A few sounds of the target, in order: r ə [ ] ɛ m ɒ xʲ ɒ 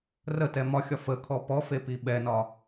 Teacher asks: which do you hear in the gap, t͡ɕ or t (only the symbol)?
t